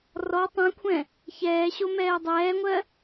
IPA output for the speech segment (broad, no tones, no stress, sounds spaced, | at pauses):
r ɔ tˤ ɛ̃ kʷʰ ɛ̃ | ç ɛː ɕ o m ɛː dˤ ɛː ŋʷ ɜ